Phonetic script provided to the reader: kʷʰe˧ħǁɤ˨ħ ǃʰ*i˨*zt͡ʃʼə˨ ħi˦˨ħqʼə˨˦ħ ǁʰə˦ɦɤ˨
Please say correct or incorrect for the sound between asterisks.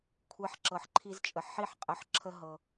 incorrect